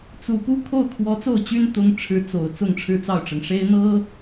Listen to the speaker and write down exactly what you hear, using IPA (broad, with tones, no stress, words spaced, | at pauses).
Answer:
t͡su˨˩pu˥ kʰo˥˩ʊ̯kʰwɔ˧˥t͡so˥˩ʊ̯t͡ɕy˥n t̪ʊ˥ŋ ʈ͡ʂʰɻ̩˥t͡so˨˩ʊ̯ t͡sʊ˥˧ŋʈ͡ʂʰɻ̩˥˧t͡sɑ˥˩ʊ̯ʈ͡ʂɤ˩ŋ ʂe˥ɪ̯n̪ɤ˥